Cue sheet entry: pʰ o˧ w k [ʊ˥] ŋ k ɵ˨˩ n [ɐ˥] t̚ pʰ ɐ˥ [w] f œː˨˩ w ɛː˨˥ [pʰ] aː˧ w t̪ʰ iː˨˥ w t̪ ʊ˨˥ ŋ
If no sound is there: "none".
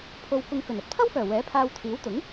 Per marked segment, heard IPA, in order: ʊ˧, ɐ˧, w, pʰ

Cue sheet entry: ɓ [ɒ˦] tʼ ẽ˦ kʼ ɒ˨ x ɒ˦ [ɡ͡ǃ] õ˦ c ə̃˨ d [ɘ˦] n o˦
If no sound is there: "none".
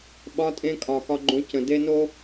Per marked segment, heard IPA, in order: ɒ˦, ɡ͡ǃ, e˦

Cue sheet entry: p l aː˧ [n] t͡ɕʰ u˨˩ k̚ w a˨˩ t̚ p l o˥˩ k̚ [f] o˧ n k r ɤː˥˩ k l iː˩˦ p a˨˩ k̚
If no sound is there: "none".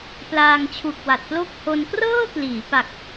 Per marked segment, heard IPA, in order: ŋ, h

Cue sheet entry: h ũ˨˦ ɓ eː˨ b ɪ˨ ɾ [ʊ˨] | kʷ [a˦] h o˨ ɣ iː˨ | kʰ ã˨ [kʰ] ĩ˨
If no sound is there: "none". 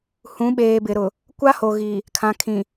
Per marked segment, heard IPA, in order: ʊ˨, a˦, kʰ

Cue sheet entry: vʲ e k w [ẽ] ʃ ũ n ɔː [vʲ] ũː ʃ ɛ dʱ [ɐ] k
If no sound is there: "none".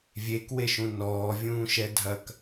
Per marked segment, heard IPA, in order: e, vʲ, ɐ

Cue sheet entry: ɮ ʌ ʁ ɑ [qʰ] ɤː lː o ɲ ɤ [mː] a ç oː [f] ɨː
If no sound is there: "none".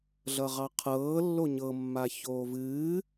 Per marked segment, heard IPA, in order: qʰ, mː, v

